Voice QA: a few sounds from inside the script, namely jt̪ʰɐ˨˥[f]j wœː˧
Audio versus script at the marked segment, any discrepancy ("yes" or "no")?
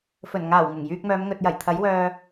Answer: yes